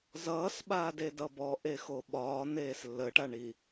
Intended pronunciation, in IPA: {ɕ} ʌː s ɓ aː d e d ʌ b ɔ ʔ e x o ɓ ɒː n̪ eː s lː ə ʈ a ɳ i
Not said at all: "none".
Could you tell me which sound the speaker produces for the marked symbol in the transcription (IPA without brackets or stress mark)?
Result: z